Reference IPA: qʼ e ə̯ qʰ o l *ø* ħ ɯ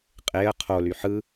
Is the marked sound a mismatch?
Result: yes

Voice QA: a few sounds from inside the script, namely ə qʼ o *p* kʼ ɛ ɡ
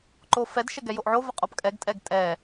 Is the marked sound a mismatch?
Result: no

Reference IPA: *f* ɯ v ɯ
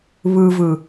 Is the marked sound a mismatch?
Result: yes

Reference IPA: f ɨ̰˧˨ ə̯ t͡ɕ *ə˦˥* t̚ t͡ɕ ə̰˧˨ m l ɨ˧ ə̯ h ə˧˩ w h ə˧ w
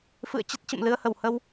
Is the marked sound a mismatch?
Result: no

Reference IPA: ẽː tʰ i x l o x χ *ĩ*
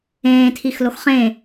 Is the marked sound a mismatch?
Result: yes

